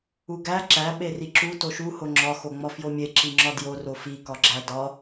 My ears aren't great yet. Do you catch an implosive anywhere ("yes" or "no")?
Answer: yes